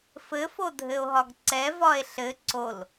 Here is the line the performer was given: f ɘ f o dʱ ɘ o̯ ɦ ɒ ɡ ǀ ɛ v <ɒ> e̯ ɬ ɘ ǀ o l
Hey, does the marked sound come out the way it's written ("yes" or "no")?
yes